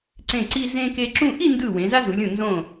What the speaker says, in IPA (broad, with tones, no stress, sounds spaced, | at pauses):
ǀ ẽ˧˩ ǀ i˧ z ẽ˧ k e˧ ǁ ũ˥˧ ʔ i˥˧ n d ɯ˧˩ w ẽ˩˧ z a˥ z u˩˧ lʲ ũ˧˩ n z õ˧˩